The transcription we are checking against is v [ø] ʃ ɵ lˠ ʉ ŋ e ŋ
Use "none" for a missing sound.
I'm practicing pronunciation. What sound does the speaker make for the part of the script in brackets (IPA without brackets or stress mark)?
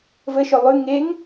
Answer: ə